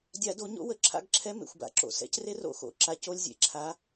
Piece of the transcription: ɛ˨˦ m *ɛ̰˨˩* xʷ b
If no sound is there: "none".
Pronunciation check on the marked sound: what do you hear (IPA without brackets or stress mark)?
ḛ˨˩